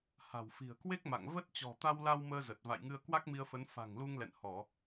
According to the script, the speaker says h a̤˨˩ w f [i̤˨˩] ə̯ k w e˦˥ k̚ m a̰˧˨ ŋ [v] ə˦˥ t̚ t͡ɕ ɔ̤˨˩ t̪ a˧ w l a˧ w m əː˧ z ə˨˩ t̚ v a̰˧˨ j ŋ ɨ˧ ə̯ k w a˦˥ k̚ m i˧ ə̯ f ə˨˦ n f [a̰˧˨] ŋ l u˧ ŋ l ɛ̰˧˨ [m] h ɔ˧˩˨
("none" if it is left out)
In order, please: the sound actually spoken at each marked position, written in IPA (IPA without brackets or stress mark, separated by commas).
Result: i̤˨˩, v, a̤˨˩, n